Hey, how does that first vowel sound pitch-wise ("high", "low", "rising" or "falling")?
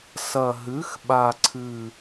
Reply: low